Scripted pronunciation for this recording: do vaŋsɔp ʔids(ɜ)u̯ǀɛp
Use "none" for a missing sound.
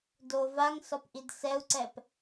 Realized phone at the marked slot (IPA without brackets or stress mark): ɛ